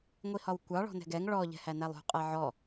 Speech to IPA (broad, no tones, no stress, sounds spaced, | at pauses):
ŋʷ i h ɒ w kʷ ɑ ɭ ɔ̤ n ɛ̤ ɡ ɛ ŋ ɭ ɔ ʎ ɛ̤ h æ n æ lˠ ṳ qʼ ɛ ʕ ɔ